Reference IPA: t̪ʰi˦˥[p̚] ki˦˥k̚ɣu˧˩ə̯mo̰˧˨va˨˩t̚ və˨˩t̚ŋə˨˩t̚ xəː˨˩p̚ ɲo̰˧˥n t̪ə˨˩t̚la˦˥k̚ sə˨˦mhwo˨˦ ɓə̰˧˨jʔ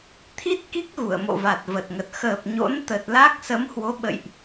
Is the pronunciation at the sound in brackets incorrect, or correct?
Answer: incorrect